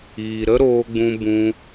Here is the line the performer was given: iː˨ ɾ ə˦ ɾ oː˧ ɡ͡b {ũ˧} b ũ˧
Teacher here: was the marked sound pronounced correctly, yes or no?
yes